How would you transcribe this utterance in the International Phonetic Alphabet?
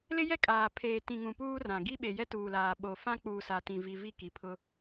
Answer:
l ɪ˦ j ɛ˦ kʼ aː˨ pʰ eː˨ t ĩ˨ ŋ ũ˨ p uː˦ r ã˨ ɡ i˦ ɓ e˨ j ɛ˦ t uː˨ l aː˨ ɓ o˨ f ã˦ k͡p uː˨ s a˨ t ĩ˨ v i˨ v i˦˨ k i˨ pʰ ʊ˦

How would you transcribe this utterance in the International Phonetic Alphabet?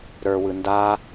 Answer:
ɾ ə˞ w ɯ n d a

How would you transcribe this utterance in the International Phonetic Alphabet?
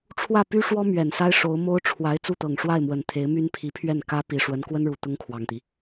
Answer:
ʈ͡ʂʰ w ä˥˩ p y˥ ʂ w ɔ˥ m ɥ ɛ˨˩ n s a˥ ɪ̯ ʂ o˧˥ ʊ̯ m o˥ ʊ̯ ʈ͡ʂʰ w a˧˥ ɪ̯ t͡s u˥˩ t̪ ɤ˨˩ ŋ ʂ w a˥˩ ɪ̯ m w ə˨˩ n t̪ʰ e˧˥ ɪ̯ m y˥ n pʰ i˧˥ pʰ ɥ ɛ˥˩ n k ä˥ p i˨˩ ʂ w ə˧˥ n k w ə˥ n ɻ u˨˩ t̪ ʊ˥ ŋ kʰ w ɑ˨˩ ŋ t̪ i˦

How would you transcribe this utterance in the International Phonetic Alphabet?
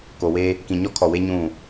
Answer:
k o˨ w e˦ | k ĩ˨ ɲ ɔ˦ kʰ ɔ˨ w e˦ ɲ ũ˦˨

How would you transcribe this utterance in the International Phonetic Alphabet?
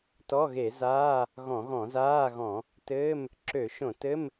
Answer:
t ɔ˧˥˧ ɣ e˧˩˧ z aː˧˥˧ | ɣ ɔ̃˧˩˧ ɣ ɔ̃˧˩˧ z aː˧˥˧ ɣ ɔ̃˧˩˧ | t ɘː˧˥˧ m | ǁ ø˧˩˧ ʃ õ˧˩˧ t ɘ˧˥˧ m

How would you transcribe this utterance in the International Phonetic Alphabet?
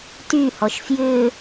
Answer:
t y h ɔ ʃ f j ʏː

